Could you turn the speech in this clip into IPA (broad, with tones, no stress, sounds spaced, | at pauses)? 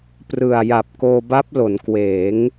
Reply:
p r ɯ˨˩ a̯ j a˨˩ p̚ k oː˧ b a˦˥ p̚ l o˩˦ n k w eː˩˦ ŋ